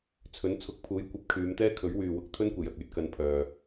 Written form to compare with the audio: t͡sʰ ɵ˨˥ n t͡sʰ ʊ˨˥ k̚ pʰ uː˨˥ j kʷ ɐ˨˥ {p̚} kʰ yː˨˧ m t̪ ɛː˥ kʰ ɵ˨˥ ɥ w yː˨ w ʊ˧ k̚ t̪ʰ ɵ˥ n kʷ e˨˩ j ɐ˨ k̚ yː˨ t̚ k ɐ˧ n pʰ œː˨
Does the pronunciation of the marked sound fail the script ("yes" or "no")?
no